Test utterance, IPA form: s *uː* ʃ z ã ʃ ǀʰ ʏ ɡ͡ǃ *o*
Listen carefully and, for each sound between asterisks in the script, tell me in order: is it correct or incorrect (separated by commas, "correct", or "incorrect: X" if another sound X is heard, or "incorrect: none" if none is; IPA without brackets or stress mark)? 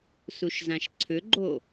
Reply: incorrect: u, correct